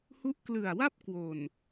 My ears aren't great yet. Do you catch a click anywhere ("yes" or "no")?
no